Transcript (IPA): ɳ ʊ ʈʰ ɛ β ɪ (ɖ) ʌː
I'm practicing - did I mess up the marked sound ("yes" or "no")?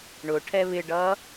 no